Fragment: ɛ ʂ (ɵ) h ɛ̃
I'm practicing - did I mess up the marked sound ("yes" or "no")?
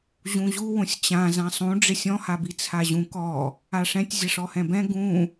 yes